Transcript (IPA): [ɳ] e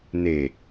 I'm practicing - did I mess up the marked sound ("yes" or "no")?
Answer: yes